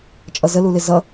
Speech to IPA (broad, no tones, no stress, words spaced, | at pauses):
t͡ʃʼʌzəlulɪ zʌ